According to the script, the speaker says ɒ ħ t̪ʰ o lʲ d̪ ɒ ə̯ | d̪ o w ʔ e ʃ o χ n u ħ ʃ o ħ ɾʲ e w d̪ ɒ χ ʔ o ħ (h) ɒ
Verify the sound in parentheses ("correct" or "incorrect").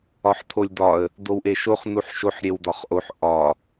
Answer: incorrect